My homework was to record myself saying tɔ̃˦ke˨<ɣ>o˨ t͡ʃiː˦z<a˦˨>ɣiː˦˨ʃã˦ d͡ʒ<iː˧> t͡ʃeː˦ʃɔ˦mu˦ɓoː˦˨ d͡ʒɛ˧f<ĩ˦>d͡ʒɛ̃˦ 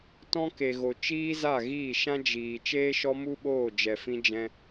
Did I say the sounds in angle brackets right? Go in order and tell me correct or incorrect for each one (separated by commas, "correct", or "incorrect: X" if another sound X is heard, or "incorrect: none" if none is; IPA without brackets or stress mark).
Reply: correct, correct, incorrect: iː˨, correct